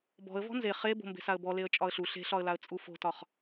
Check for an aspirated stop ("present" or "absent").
absent